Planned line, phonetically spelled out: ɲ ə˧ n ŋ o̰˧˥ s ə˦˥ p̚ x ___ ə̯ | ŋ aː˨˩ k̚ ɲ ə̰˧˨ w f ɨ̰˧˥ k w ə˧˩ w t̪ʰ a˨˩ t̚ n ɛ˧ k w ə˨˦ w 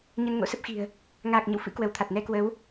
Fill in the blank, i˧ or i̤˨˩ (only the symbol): i̤˨˩